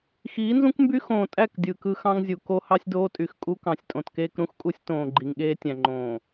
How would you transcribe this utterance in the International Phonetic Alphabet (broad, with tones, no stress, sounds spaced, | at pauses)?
x iː˨˦ n z ũ˦ k m b y˦ x õː˨ tʼ æ˦˨ k dʲ ɯː˨ k ɯ˦ x ɑ̃˦ ŋ zʲ u˨ k o˦ h ɑ˦ sʲ d oː˦ tʼ y˨ x kʼ u˦ k ɑ̃˨ sʲ tʼ õ˨ t k eː˦ k ɾ ũ˦ x kʼ u˦ sʲ t õː˨ ɡ͡ǃ i˨ ŋ ɠ eː˦ tʲ æ̃˨ ŋ͡ǃ õː˨